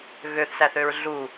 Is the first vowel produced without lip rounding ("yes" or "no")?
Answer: no